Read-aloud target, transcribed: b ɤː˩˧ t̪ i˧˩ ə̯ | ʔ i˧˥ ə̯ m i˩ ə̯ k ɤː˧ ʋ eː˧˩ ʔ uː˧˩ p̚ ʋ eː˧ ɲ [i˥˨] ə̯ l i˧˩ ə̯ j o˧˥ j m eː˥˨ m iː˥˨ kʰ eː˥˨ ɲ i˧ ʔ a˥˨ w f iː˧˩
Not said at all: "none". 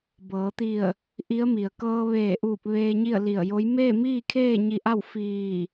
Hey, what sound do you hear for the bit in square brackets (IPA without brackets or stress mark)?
i˥˨